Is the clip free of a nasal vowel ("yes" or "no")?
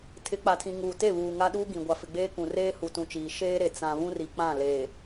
no